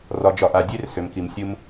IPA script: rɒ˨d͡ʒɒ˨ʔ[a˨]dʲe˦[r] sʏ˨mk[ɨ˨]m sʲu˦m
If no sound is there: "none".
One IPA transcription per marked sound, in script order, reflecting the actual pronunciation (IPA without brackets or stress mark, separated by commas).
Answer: a˨, r, i˨